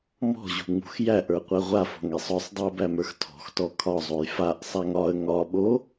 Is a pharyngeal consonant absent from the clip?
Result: yes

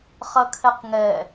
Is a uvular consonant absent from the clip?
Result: no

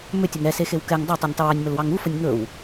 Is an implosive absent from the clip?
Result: yes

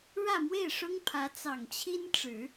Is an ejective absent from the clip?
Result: yes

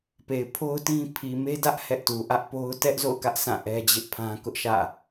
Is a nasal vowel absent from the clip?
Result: no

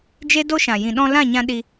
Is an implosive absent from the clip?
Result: no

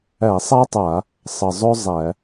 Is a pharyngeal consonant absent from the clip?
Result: yes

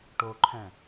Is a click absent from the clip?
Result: no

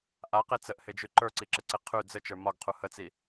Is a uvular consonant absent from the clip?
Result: no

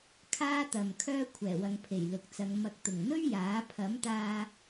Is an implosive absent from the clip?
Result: yes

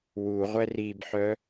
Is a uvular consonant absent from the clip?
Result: no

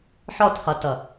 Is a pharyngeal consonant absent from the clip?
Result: no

